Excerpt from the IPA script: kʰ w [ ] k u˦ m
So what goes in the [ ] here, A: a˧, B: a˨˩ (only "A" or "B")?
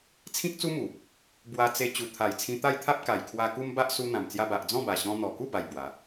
A